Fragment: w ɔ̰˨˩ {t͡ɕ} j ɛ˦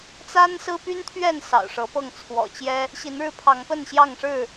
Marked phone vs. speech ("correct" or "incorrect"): correct